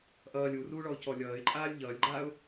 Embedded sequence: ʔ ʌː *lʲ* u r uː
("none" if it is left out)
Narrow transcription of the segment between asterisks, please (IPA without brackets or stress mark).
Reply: lʲ